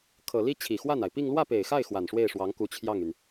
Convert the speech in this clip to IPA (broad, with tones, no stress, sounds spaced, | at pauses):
kʰ ɤ˨˩ l i˥ t͡ɕʰ i˨˩ x w a˥˩ n a˩ ɪ̯ p i˥˧ ŋ l w ä˥˩ p e˨˩ ɪ̯ x a˥˩ ɪ̯ x w a˨˩ n ʂ w e˥˩ ɪ̯ ʂ w ɑ˧˥ ŋ k u˧˥ t͡ɕʰ j ɑ˥˩ ŋ y˩ n